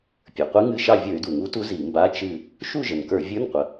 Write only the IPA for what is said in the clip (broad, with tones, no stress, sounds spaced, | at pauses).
pʲ ə˞˩ qʷ i˧˥ ŋ ɨ˧˥˧ ʃ ɑ˥˨ vʲ ə˞˧˩˧ y̯ d u˩ ŋ u˧˥ t u˧˥ z i˧˩˧ m b a˧˥˧ t͡ʃ ɨ˥˨ | ʃ u˥˨ ʒ ə˩ n k ə˞˧˩˧ vʲ ə˞˧˥˧ n qʷ ə˩